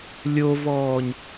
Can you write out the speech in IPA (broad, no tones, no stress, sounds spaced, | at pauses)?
lʲ o v ɔː ɲ